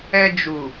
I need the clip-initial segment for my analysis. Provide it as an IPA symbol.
ɛ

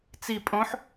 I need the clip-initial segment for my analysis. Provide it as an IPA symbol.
t͡s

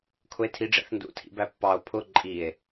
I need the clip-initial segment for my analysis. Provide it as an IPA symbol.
kʰ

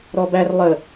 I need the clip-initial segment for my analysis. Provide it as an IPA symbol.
ɾ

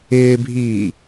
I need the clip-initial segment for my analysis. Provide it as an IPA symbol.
ɪː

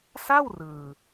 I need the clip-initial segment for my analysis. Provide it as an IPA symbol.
s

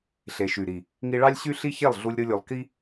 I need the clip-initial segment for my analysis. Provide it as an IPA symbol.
ɬ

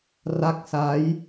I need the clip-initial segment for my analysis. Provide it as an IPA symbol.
r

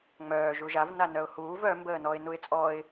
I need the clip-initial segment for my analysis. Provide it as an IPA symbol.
ŋ͡m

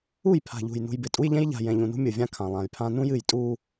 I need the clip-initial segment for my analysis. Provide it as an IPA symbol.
u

